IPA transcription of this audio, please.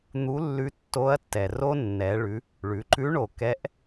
n̪ u˧˥ lː ʉ˧˥ tː o˧˥ ɐ̯ tː ɛ˩ r o˥ nː ɛ˩˧ ɭ ʉ˩˧ | ɭ ʉ˩˧ ǃ ʉ˧˥ ɳ o˩ k ɛ˧˥ ʔ

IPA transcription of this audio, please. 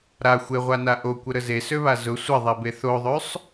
ɾ a xʷ e ʁʷ a n a ʔ o kʷ ə ɾ ə z e s ø β a z ʊ sʷ ə ðˤ e b e θ o ðˤ ø sˤ

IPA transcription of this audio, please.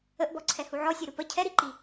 ə ʔ b ɔ ǀʰ ɛ h u ʕ ɔ sʲ ɛ ɾ u p ə cʰ ɛ ɾ i ǃ i

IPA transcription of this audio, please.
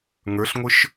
ŋ ə˞ ɬ ŋʷ ə˞ ʃ

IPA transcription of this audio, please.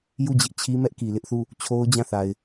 j u˦˨ d͡ʑ ɪ˦ ʔ t͡ɕʰ i˦ m ɛ˦ ʔ k i˨ l ɪ˦ ʔ θ u˦˨ | t͡ɕʰ o˦ ʊ̯ d͡ʑ ã˦˨ θ a˨ ɪ̯

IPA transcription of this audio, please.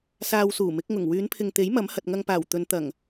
s aː˧ w s uː˨˩ m ɪ˨˥ k̚ ŋ ʊ˨˩ ŋ w yː˨˧ n pʰ ɪ˨ ŋ t̪ e˨˥ j m ɐ˨˥ m h ɐ˨ t̚ ŋ ɐ˧ ŋ p aː˨˩ w t̪ ɵ˨˧ n t̪ ɐ˨˩ ŋ

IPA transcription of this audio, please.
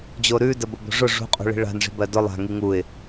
d͡ʑ o ɾ ʉ d ə b ʊ b o̤ ʐ ʊ ʐ ṳ qʼ ṳ ɭ i̤ ɭ a̤ n ʐ i̤ b ɜ d ʊ lˠ a̤ ŋ i ŋ u ɪ̯

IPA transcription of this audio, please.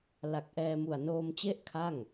l a˨˩ k̚ ʔ ɛː˧ m u˨˩ a̯ n oː˧ m t͡ɕ e˥˩ ʔ kʰ a˥˩ ŋ

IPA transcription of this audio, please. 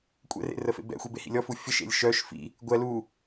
kʷʼ ɛ̰ r ḛ r ə f ḛ b ɛ̰ xʷ i b e h ḭ lʲ ɔ f u fʲ ə ʃ ḛ lʲ ʃ œ ʃ f ḭ | ɡʷ ɛ l u

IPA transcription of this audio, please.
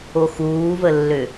o x uː v ə lː ø

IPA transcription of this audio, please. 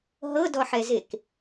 ɦ ɤ d ɔ ħ ɛ z e k

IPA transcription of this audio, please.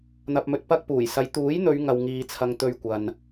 n̪ ɐ˨ p̚ m ɵ˨ t̚ p ɐ˧ k̚ p uː˨˩ j s ɐ˨˧ j t̪ uː˨˥ j n̪ ɵ˨˧ ɥ ŋ ɐ˨ w ŋ iː˨ t͡sʰ ɐ˨ ŋ t̪ ɵ˧ ɥ kʷ ɐ˨ n

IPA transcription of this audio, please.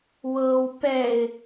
w ɤ w p ɛ ɪ̯

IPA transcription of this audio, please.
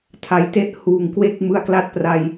tʰ a˨˩ j t e˥˩ ʔ h uː˨˩ ŋ k w e˥˩ k̚ m ɯ˦˥ a̯ k l a˥˩ t̚ p r a˧ j

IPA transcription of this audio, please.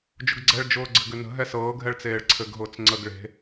d͡ʒ ʊ ɡ ɡ͡ǀ ɛ ɭ d͡ʒ ʊː ɡ͡ǀ ɘ ɡ ʏ n ə̤ ɦ ɛ s ɤː ɡʱ ɛ ɭ t͡s eː ɭ ǀʰ ɘ ɡ ɦ ʊː t͡s ŋ͡ǀ ə ɡ ɭ e̤

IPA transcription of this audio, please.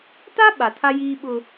t a˦ ɓ a˨ tʰ a˦ j iː˦ ɓ ʊ˦

